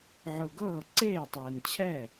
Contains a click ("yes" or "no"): yes